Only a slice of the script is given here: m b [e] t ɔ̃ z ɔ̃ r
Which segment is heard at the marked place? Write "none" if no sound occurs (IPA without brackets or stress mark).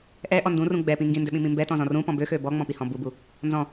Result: ɛ